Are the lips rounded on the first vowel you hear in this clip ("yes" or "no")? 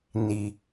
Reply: no